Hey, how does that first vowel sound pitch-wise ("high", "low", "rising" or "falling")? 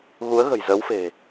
rising